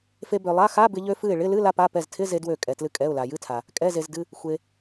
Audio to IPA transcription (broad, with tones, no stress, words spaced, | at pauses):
fe˧bø˩lˠa˧˥˧ xa˧˥˧bɪ˧ ʎø˧fɨ˧˩ɪ̯ɭɪ˧˥˧lɨ˧˥˧ la˧pa˩˧˩pɛ˧˩ztʰɪ˧˥˧ ze˧dwø˧˩ kʼɛ˩tlɨ˧ kʼɛ˩˧˩ʊ̯la˩jɨ˧˥˧tʰa˩ | kʼɛ˩˧˩ze˩zdɨ˩˧˩ | xʷe˩